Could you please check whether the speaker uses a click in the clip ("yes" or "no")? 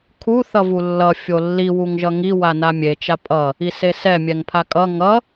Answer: no